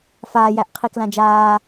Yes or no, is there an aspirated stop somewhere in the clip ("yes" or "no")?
yes